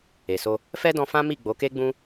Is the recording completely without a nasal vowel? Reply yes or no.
no